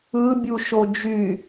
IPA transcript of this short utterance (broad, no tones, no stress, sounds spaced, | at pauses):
ɯ bʲ u ʃ o d͡ʒ y